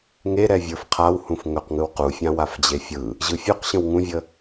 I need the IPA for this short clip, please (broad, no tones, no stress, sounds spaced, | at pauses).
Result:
ŋ e ɾ ɛ vʲ ə˞ f qʰ a w h ũ f ŋ ɵ q ŋ ɯ w q u fʲ ã w a f d͡ʑ e fʲ ɯ | ʑ ɯ fʲ u q ɕ ə̃ w ŋ ũ vʲ ə